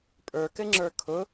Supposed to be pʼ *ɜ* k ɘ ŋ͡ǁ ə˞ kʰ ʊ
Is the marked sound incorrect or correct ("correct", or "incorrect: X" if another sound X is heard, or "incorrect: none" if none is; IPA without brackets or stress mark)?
incorrect: ə˞